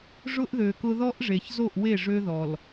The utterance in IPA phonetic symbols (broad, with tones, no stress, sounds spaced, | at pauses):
ʐ ʊ˦ ʔ ð ø˨ k ʊ˦ ð ɔ˦ ʔ ʐ e˨ ç z o˦˨ ʔ w e˦˨ ʐ ø˦ ð ɔ˨ l